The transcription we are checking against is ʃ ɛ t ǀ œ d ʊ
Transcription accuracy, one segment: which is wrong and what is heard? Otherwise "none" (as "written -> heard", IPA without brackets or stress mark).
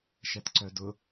none